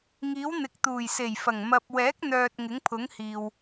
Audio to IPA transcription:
ŋ iː˨˥ w n̪ ɪ˨ k̚ t̪ uː˨˩ j s e˨˩ j f ɐ˨˩ ŋ m ɐ˧ p̚ w ɛː˨˥ k̚ n̪ œː˨ t̚ ŋ ɪ˨˥ ŋ pʰ ʊ˨˥ ŋ h iː˨ w

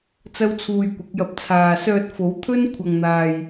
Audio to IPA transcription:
t͡s ɐ˥ w t͡sʰ uː˧ j kʷ ɪ˨˥ k̚ j ɐ˧ p̚ t͡sʰ aː˨ s œː˧ t̚ f o˨˥ w t̪ʰ ɵ˥ n kʷʰ ɐ˨ ŋ n̪ aː˨ j

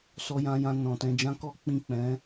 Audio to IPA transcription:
s ɔ˧ j ã˧ j ã˧ n ɔ̃˨ t ɛ̃˧ d͡ʒ ã˦ k ɔ˦ k͡p ĩ˦˨ k͡p ɛ̃˨˦

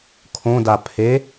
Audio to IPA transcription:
kʰ õ d a pʰ e

